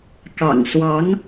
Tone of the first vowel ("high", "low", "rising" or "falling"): low